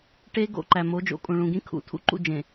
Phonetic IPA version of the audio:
ʈe˦ ɡo̰˦˨ǃæ˨mo˨˦ d͡ʒo̰˨kʼũ˨ ɭũ˨ɡĩ˦ kʰṵ˨ tʰṵ˦ǃṵ˦d͡ʒẽ˨

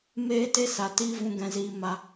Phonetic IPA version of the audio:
meː˦ te˦sa˨ tiː˧vũ˨ ɡɛ̃˨ziː˨ma˨

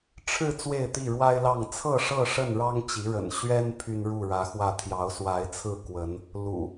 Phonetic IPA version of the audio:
ʈ͡ʂʰɻ̩˥˨ t͡swe˥˨ɪ̯t̪i˥˨ɻwa˦ɪ̯lɑ˥˨ŋ t͡sʰɤ˥˨ʂɤ˥˨ ʂə˥˨nɻɑ˦ŋt͡ɕi˨˦ɻə̰˨˩n ɕɥɛ˦n pʰy˦nɻu˥˨ɻä˨˦xwä˥˨ t̪ʰjɑ˨˦ʊ̯swa˨˦ɪ̯t͡sʰɹ̩˥˨ kwə˨˦n | lṵ˨˩

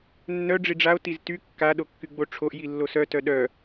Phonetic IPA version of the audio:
nːœ ɖ͡ʐiɖ͡ʐao̯ tizty kːa ɗokːyɡ͡boʈ͡ʂʰoʔ jilːosœ tœɗœ

